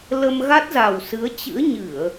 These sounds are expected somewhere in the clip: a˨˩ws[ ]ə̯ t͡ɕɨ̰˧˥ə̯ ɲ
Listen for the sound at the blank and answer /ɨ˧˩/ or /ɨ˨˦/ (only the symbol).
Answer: ɨ˨˦